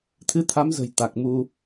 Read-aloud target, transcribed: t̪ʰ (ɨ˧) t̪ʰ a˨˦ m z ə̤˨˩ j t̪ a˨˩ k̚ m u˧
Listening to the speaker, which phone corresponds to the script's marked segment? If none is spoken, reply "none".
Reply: ɨ˧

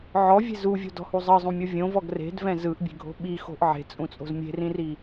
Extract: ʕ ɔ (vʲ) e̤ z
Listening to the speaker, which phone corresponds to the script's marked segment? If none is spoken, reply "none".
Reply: vʲ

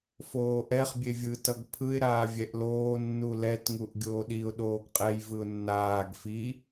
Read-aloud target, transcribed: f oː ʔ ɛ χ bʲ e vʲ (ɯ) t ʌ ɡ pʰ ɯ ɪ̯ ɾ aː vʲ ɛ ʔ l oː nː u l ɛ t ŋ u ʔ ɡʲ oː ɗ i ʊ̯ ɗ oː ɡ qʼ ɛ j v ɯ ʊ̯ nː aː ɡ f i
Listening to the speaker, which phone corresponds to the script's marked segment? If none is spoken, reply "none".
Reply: ɯ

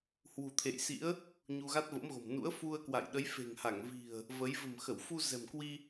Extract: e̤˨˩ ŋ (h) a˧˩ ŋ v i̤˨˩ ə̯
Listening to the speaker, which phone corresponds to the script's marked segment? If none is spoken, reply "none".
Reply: h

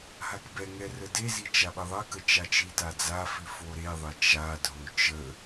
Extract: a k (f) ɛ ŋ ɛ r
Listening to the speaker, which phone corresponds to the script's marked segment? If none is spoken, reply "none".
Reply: b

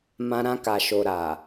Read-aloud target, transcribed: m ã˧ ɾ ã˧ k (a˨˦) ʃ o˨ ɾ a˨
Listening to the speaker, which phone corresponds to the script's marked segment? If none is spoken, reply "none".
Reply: a˨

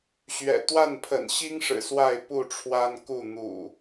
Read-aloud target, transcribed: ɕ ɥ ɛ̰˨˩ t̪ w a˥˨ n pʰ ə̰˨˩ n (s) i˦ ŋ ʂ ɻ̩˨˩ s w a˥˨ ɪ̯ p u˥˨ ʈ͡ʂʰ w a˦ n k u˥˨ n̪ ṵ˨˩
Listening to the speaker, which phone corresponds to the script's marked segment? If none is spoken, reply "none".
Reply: ɕ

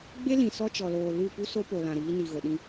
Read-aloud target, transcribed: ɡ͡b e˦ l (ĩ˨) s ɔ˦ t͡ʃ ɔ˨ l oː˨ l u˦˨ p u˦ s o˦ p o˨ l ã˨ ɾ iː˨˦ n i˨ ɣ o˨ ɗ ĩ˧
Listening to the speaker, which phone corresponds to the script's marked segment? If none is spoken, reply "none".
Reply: ĩ˨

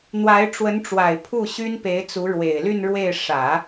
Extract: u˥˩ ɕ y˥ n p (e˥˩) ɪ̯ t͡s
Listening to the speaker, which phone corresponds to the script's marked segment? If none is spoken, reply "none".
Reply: e˧˥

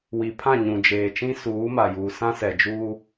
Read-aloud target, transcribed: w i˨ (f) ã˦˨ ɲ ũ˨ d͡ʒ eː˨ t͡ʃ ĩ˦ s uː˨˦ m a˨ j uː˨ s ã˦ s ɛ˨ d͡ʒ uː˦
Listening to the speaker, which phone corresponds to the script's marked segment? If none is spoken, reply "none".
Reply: pʰ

